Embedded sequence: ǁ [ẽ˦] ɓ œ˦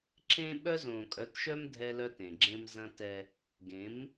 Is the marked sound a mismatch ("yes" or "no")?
no